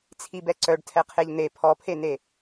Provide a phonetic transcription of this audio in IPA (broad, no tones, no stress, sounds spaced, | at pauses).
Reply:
t͡sʰ i b ɛ ǀ œ ɖ tʰ ɛ qʰ e ʎ n̪ e pʰ ɔ pʰ e n e